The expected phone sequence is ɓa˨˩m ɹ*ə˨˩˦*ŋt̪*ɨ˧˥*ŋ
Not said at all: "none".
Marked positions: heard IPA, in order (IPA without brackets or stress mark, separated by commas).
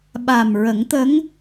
ə˨˩˦, ə˧˥